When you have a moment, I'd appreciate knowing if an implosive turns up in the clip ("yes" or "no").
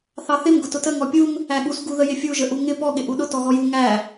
yes